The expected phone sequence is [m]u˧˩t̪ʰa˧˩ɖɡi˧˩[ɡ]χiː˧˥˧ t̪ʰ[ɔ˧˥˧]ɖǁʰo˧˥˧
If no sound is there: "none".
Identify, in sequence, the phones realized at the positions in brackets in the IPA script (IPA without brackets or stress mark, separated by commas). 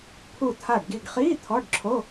pʰ, ɡ, ɔ˧˥˧